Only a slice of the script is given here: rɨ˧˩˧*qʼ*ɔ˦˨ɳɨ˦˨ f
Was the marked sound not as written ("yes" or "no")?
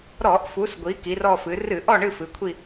yes